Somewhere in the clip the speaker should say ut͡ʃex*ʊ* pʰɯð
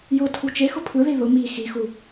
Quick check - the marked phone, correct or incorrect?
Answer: correct